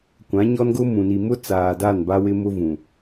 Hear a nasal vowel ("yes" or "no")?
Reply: yes